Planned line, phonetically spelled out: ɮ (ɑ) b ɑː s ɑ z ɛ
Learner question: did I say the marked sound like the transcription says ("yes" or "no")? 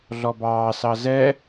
no